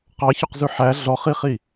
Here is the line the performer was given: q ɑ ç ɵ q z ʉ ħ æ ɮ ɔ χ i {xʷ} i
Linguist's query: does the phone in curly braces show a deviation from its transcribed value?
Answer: yes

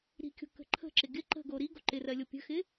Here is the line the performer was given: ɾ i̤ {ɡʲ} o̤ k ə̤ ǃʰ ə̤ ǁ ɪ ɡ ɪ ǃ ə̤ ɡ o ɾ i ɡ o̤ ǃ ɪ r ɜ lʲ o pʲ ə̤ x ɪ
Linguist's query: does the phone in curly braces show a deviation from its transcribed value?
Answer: yes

